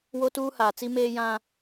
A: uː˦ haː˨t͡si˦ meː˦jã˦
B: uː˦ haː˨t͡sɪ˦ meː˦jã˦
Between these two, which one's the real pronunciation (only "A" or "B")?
A